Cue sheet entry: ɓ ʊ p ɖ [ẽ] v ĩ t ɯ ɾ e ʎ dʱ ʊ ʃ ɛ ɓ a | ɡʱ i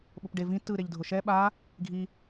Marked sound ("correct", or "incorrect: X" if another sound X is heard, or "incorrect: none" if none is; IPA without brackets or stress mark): incorrect: e